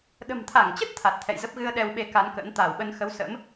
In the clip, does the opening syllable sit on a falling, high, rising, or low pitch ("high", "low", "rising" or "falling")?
low